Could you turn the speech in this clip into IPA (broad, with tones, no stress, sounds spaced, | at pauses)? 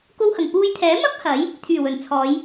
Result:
k o˧ w h ɐ˨˩ ŋ p uː˧ j t̪ʰ ɛː˨˥ m ɐ˥ p̚ h ɐ˨˥ j | t̪ʰ yː˨˩ w ɵ˨˩ n t͡sʰ ɔː˨˧ j